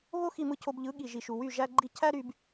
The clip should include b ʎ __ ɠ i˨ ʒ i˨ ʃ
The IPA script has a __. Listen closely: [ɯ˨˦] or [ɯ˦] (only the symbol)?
ɯ˨˦